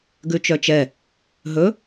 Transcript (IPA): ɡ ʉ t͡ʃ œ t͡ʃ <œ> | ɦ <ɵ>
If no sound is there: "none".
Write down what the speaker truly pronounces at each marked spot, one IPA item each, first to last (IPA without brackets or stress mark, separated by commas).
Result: ɛ, ɵ